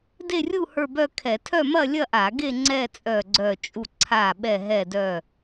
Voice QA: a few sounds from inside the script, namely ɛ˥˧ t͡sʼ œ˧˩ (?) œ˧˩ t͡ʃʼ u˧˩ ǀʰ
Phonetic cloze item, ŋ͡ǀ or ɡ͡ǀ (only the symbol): ɡ͡ǀ